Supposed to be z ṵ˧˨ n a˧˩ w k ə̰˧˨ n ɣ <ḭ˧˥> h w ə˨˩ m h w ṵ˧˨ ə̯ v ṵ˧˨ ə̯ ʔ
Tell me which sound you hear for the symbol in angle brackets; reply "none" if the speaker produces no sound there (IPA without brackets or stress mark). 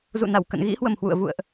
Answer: ḭ˧˥